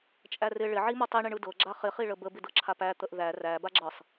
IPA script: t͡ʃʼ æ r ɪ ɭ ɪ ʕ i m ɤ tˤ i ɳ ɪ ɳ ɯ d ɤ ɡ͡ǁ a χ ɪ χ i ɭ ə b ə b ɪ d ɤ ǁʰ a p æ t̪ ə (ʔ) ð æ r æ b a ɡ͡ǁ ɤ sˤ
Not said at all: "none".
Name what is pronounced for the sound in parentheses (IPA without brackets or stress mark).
ʔ